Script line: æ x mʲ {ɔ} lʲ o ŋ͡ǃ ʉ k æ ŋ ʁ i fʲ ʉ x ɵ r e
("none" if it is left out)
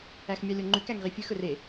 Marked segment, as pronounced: ɑ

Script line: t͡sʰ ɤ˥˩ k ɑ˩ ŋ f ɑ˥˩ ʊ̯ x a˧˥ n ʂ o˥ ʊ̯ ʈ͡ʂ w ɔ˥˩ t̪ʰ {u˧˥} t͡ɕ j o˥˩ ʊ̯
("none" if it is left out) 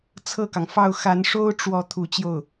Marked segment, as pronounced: u˧˥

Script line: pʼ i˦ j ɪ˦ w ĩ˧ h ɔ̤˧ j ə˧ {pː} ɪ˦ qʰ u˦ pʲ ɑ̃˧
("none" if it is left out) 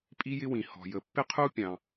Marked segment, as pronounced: pː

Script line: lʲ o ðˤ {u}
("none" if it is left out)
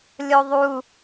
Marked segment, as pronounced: u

